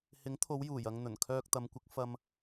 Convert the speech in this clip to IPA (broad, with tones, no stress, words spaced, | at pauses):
hɪ˨˥ŋt̪ʰo˨˧wjuː˨˩jɐ˨ŋ n̪ɵ˨˩nkʰœː˧k̚t̪ɐ˨˧mkʷɪ˨˥k̚ fɐ˨m